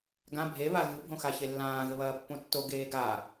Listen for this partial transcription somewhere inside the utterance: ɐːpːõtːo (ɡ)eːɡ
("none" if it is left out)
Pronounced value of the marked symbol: ɡ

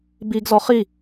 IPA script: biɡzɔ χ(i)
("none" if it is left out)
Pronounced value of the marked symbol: i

